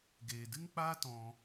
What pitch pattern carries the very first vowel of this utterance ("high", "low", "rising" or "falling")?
low